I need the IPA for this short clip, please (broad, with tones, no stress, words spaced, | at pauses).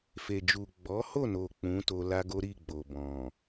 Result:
fe˨d͡ʒu˨ ɡ͡bɔ˨˦ho˦˨no˨ k͡pũ˨˦ to˧la˦ɡo˦ ɾi˦˨ ɡ͡bo˨bɔ̃˨